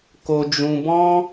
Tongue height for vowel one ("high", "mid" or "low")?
mid